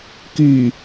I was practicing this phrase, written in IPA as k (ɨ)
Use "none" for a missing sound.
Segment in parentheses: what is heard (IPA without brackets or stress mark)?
y